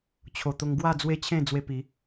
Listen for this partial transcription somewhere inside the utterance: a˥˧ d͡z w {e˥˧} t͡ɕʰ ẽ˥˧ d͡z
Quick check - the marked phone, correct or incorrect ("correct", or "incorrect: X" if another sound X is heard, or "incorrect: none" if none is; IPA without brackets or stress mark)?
incorrect: e˦